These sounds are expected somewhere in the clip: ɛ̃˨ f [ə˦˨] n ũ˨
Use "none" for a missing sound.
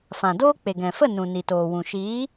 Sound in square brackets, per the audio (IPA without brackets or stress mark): ə˦˨